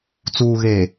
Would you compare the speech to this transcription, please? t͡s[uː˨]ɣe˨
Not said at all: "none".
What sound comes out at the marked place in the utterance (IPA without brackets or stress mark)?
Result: uː˨